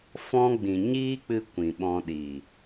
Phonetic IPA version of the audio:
f ɔ̃˦ ɡ͡b ĩ˨ ɲ iː˦ k͡p ɨ˧ kʷ ĩ˨ ɓ ɔ̃˧ ɗ i˨

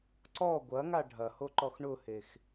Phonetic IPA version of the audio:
ǀ ɔ ɡʷ ɐ ŋ a ɖʱ ɐ h o ǃ ɔ x ɳ ʊ h e x

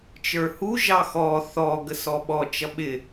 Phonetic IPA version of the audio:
t͡ʃ ə˞ h u ʒ ɑ x ɔ θ ɔ ɡ ə s ɔ ɓ ɔ t͡ʃ ʌ ɓ ɪ

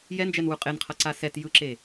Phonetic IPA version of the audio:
j ɛ n d͡ʒ ɛ n w u qʼ e n qʰ ʌ ǀ a s ɛ t j ɯ ǁ e

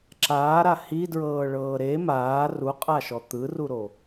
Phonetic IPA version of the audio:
ǁ aː ɾ a h i d ɹ ɤː ɭ ɤː ɾ e m aː r u qʼ a ʃ ɔ t̪ ɯ r u ɾ o

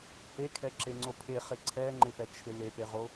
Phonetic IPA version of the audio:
h e kʰ ɛ ǁ e ŋ͡ǀ o pʰ e χ ɪ ǀʰ ɛ ŋ͡ǃ ɪ p ɛ t͡ʃʰ ɪ l e p e ʁ o

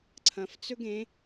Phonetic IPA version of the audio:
ǀʰ ɐ̃ f t͡s ɵ ɡ ẽ

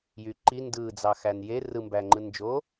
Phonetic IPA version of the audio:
j y ǃ i n d ɯ d͡z ɑ x æ n j e r ɯ m b æ ŋ͡ǃ ɯ n d͡ʒ o

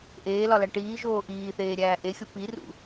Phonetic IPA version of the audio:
ʔ eː l ɒ l æ ʈ iː ʒ oː ʔ iː θ eː ɾʲ æː ʔ e xʲ o p i r ṵ

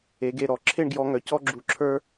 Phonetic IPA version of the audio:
e˩˧ ɡ e˧˩ ɾ ɔ˩˧ ǁʰ e˥˧ ɳ ɡ j ɔ˧ ŋ œ˩˧ c ɔ˥ ɡ͡ǁ u˧ ǁʰ ə˞˥

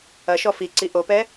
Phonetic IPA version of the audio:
ɐ ʃ ɔ f i ǀ i ʔ o p ɛ

